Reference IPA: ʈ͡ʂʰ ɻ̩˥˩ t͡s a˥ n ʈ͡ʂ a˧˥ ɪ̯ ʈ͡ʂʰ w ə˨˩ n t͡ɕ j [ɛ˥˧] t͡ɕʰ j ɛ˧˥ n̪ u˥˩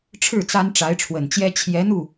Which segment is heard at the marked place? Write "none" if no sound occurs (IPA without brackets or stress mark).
ɛ˥